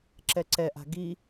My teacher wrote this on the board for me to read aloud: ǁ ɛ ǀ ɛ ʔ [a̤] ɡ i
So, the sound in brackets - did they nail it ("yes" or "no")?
yes